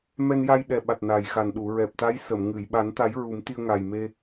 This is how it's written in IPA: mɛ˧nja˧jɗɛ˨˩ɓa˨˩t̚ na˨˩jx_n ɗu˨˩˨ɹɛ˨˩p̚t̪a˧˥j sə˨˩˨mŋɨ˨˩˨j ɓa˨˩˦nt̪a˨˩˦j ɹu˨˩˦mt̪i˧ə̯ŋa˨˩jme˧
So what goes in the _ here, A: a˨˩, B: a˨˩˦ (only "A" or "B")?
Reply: A